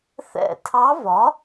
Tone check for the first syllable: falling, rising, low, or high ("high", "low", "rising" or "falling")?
falling